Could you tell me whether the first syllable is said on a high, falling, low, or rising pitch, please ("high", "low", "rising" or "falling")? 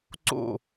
falling